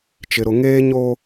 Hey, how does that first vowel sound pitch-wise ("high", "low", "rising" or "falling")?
low